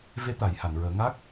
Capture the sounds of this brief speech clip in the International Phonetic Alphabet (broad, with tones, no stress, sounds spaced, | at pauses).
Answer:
v e˧˥ t̪ a˨˩˦ j h a˨˩˨ n ɹ əː˨˩˦ ŋ a˦˥ k̚